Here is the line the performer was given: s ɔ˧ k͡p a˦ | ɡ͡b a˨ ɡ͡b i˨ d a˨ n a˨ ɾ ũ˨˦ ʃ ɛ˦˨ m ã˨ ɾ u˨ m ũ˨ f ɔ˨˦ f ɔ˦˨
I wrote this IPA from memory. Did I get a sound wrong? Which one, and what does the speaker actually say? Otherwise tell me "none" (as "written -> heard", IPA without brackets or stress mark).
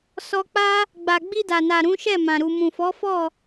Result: i˨ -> i˧